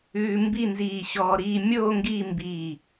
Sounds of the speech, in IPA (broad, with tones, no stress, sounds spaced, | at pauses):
ʉː˧ m b i˥˧ n z iː˧˩ ɕ ɔː˧ ɾ iː˥˧ mʲ oː˥˧ ŋ ɡ iː˥˧ m b iː˧˩